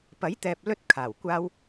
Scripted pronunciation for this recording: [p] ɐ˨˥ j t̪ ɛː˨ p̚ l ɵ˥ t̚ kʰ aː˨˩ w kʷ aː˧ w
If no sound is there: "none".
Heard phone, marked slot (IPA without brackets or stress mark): p